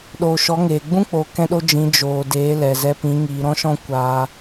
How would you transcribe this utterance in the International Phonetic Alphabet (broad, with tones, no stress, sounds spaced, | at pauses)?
ɗ oː˨ ʃ ɔ˨˦ ŋ eː˨ ɡ͡b ũ˦ k͡p oː˨ k ɛ̃˧ ɗ o˧ d͡ʒ ĩ˨˦ d͡ʒ oː˨ d eː˨˦ l ɛ˨ z ɛ˧ p ĩ˨˦ ŋ iː˨ ɾ ɔ̃˦ ʃ ɔ̃˦ kʷ aː˧